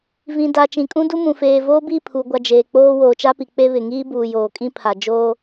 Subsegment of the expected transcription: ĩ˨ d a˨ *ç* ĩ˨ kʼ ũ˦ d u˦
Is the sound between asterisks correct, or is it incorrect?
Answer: incorrect